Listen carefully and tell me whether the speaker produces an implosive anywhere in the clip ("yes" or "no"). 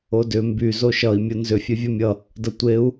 no